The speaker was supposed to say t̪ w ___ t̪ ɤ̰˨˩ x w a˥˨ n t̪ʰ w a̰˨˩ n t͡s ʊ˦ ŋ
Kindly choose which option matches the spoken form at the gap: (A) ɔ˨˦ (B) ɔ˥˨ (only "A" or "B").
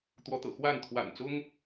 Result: A